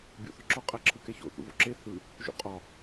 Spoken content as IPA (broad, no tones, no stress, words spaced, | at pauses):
bʲo̰θɒǁɔ qʼæǁʰɯkɛço̰ θṵvo̰ǁe θɯ | ʒṵqʼɒ